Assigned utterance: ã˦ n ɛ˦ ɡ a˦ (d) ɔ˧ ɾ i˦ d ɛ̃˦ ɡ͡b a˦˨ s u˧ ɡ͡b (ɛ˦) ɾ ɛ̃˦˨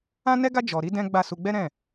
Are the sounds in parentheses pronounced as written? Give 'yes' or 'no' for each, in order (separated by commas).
no, yes